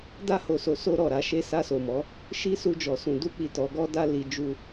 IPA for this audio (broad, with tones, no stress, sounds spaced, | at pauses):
d a˧ h o˨ s o˨ s o˧ ɾ ɔ˨ ɾ a˧ ʃ e˧ s a˧ s o˨ m ɔ˨˦ | ʃ i˦ s u˧ d͡ʒ ɔ˨ s ũ˨ d u˧ k͡p i˨ t ɔ˨˦ ɡ ɔ˦ d a˦ l i˧ d͡ʒ u˦